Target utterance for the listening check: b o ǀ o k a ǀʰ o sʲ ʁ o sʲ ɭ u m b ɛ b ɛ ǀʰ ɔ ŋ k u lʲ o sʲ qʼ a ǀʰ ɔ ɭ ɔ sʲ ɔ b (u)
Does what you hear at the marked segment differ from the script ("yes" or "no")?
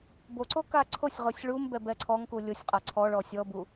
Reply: no